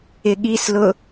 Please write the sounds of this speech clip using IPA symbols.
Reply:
ɪ ɠ i s l ʊ

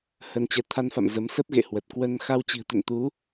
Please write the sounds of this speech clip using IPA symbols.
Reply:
h ə˧ n t͡ɕ ɛ˧ t̪ʰ a˧ n f a̰˧˨ m z ə˨˦ m s ə˦˥ p̚ ɣ ḛ˧˨ h w ə˨˩ t̚ k w ə˧ n x a˧ w t͡ɕ i̤˨˩ ə̯ t̪ ə̰˧˨ n t̪ u˨˦

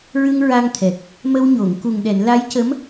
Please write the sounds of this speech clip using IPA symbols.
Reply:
ɹ ɨ˧ ŋ ɹ a˧ ŋ t̪ʰ ɛ˨˩ k̚ | m ə˧ w ɲ o˨˩˨ ŋ k u˨˩ ŋ ɗ ɛ˨˩˨ n l a˧˥ j c ə˧˥ m

